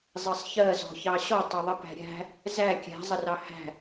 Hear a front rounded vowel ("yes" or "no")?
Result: no